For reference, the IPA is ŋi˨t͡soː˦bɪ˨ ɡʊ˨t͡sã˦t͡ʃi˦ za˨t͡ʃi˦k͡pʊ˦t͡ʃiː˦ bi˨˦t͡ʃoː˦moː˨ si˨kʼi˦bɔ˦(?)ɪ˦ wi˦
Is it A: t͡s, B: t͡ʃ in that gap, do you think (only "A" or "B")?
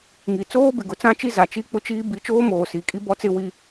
A